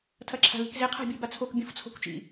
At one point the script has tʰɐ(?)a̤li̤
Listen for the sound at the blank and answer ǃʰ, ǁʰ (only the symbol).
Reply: ǁʰ